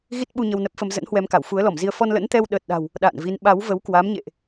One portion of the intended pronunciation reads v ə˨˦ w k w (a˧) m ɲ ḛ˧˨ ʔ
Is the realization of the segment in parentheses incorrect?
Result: yes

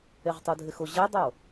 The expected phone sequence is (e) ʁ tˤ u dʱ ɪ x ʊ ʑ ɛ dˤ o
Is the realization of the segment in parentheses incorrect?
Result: no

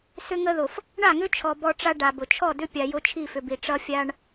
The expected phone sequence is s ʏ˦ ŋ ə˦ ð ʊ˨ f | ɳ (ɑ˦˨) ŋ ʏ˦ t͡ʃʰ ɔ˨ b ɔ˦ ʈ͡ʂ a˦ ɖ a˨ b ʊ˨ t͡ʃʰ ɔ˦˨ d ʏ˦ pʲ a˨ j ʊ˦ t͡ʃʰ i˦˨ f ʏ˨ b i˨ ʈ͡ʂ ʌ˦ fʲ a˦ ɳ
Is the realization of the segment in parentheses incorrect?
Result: yes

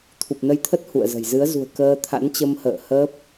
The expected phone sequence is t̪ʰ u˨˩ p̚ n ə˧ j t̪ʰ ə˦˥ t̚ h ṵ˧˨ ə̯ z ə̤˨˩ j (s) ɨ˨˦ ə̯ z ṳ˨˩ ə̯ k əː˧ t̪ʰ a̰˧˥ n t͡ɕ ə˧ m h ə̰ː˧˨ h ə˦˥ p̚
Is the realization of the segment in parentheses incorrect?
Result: yes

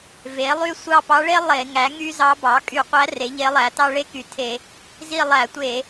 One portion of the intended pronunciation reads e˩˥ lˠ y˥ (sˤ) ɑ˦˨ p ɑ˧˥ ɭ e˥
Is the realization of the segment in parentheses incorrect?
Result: yes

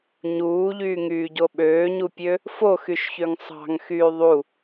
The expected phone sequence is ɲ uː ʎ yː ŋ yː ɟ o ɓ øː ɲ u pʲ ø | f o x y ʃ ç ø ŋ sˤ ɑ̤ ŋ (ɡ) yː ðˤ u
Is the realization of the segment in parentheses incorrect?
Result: yes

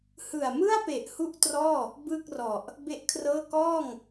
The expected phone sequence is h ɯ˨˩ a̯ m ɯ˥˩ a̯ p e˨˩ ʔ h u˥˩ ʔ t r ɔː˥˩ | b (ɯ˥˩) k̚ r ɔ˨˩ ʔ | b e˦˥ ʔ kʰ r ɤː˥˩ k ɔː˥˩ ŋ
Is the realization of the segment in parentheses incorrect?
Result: no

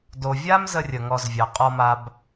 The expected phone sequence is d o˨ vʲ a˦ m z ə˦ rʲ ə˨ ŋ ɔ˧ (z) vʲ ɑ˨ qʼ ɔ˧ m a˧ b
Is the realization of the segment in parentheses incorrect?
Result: no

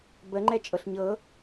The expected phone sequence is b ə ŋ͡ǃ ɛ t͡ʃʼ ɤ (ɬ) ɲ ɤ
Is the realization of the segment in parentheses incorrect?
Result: no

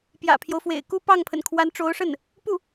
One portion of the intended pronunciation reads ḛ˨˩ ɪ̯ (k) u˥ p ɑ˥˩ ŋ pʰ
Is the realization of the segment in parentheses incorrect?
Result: no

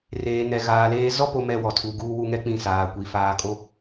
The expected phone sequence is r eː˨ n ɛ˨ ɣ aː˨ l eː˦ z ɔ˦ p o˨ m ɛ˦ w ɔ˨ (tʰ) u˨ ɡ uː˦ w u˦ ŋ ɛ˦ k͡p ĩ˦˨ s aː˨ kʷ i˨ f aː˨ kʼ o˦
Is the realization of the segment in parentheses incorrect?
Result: no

